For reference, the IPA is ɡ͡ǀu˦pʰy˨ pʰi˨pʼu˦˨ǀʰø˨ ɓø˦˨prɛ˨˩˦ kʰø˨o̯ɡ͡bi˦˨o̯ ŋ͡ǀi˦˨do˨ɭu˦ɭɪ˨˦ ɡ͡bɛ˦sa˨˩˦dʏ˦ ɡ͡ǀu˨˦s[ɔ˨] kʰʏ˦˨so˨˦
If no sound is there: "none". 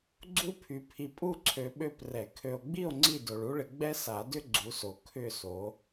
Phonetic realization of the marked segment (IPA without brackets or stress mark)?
o˨